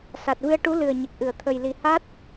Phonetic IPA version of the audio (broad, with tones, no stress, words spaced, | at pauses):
sa˨˩t̚vɨ˧ə̯ʈu˧˥ lɨ˨˩ə̯ɲə˨˩k̚ʔɨ˨˩˨ə̯ t̪ʰə˨˩jli˨˩ ha˦˥t̚